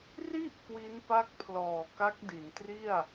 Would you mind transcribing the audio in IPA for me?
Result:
r i˥˩ ʔ k w i˦˥ n p a˦˥ k̚ pʰ l ɔː˨˩ k a˦˥ k̚ d i˩˦ n t r i˥˩ a̯

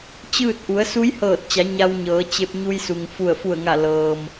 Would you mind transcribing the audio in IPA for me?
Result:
t͡ɕ ɯː˥˨ t̚ ʔ u˩˧ ə̯ s u˧˥ j h ɤː˧˩ t̚ t͡ɕ a˩˧ ɲ a˧ w ɲ ɤː˩˧ t͡ɕ e˧ p̚ ɲ u˧ j s u˩ ŋ f u˧˩ ə̯ f u˧˩ ə̯ ŋ a˧˩ l ɤː˩ m

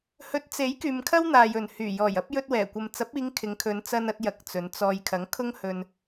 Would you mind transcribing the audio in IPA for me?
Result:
h ɵ˨˥ t̚ t͡s e˨˥ j k yː˨ m kʰ ɐ˥ w n̪ aː˨ j ɵ˨˩ n h yː˨˩ j ɔː˨˩ j ɐ˨˥ p̚ j ɵ˧ t̚ w ɛː˨˩ kʷ ɐ˨ m t͡s ɐ˨˥ p̚ iː˨˧ ŋ kʰ ɪ˨˧ ŋ kʰ ɵ˨˧ n t͡s ɐ˧ n ɐ˧ t̚ j ɐ˨ k̚ t͡s ɵ˨˧ n t͡s ɔː˧ j kʰ ɐ˨˥ ŋ kʰ ʊ˥ ŋ h ɵ˧ n

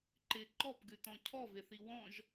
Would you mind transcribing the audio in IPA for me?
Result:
ǃ ɪ ǃ ɔ p ɡ ʉ t ɔ̃ cʰ ɔ v e θ i w ɔ̃ ʒ

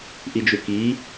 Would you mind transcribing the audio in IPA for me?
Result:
ʔ i d͡ʒ u k i

